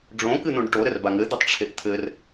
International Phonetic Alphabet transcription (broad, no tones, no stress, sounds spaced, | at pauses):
ɖ͡ʐ õ k ɨ n̪ õ ɖ ʈ o ɾ ɘ r b a ŋ ɘ d̪ ɘ tˤ ʈ͡ʂʰ e ʔ t̪ʰ ɘ r